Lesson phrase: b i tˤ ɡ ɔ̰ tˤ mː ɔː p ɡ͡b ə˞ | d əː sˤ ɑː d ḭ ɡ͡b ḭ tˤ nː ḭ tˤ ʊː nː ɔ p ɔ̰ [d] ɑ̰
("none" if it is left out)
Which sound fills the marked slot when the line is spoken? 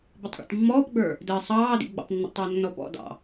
d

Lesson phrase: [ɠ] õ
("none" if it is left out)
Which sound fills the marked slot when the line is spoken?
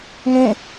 ŋ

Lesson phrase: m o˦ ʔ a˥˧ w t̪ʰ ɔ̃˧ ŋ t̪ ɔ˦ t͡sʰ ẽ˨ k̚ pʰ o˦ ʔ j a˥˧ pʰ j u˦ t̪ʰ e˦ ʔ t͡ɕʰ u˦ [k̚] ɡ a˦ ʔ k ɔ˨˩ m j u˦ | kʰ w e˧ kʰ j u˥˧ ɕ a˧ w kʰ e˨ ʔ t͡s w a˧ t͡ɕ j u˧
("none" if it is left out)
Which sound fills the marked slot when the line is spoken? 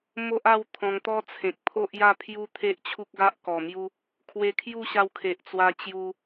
k̚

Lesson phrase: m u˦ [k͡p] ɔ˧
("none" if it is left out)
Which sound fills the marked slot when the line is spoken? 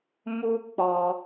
k͡p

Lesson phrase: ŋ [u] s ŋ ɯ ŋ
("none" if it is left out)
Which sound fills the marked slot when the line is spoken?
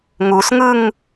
u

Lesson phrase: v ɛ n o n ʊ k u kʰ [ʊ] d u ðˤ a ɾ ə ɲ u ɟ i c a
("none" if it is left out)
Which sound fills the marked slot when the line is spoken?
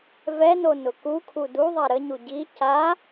u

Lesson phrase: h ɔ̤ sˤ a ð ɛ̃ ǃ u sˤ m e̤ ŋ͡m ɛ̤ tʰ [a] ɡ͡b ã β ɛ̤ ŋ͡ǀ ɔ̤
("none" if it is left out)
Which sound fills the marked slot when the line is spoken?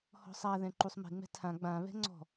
ã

